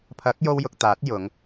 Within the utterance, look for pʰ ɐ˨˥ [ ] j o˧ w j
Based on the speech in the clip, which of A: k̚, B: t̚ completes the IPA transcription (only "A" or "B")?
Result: A